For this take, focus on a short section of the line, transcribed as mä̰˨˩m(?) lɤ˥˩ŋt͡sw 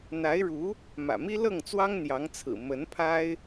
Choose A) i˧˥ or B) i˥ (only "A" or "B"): B